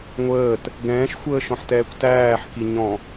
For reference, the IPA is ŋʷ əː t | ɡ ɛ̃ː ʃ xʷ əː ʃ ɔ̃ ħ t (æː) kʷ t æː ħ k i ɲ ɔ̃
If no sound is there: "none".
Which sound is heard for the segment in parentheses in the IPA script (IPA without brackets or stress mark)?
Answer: ɛː